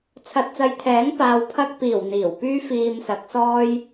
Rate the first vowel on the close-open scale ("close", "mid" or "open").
open